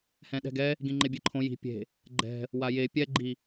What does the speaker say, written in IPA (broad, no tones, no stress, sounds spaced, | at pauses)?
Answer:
h ɛ̃ ɗ ɛ̤ ɡ ɛ | ɡ ĩ ŋ͡ǃ e bʲ e ǃʰ õ j i̤ pʲ e̤ | ɡ͡ǃ ɛ̤ | w a j e pʲ ɛ ɡ͡ǃ i